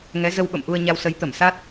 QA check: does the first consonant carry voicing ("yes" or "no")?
yes